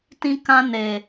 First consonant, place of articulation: alveolar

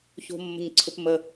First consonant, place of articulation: palatal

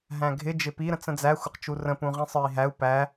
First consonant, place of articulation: glottal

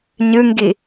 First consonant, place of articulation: palatal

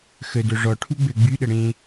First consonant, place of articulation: velar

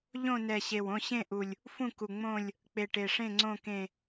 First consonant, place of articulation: palatal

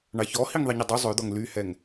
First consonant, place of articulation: retroflex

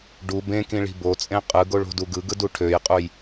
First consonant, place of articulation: retroflex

